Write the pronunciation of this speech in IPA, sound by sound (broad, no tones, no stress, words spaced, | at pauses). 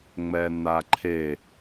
ŋ͡mɛn̪aǃʰe